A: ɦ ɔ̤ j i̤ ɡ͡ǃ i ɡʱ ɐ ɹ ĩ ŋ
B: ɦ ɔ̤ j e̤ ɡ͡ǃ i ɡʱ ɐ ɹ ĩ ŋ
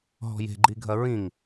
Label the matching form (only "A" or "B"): B